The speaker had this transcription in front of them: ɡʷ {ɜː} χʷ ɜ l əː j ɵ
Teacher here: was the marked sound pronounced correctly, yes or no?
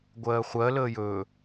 yes